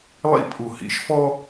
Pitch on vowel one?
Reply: high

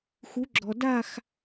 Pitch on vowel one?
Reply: rising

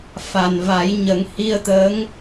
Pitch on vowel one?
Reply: low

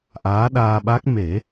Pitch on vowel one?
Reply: rising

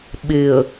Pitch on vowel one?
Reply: low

